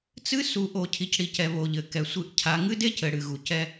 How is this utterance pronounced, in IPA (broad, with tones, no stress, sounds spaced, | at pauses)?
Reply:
t͡s ɨ˦ s u˨ ʔ o˨ cʰ i˨ c ɽ i˨ c ɛ˨ β o˨ ʎ ɘ˨ k ɛ˨ sʷ ɨ˦˨ ʔ cʰ a˦ ŋ ɨ˦ d e˦ c ɘ˨ ɽ ɨ˨ ɣ u˨ c ɛ˦